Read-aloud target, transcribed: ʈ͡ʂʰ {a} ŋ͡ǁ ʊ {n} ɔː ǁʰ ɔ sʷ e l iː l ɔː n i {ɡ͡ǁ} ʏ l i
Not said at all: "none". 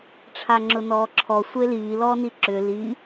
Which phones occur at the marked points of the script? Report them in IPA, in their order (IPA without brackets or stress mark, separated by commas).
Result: a, n, ǁ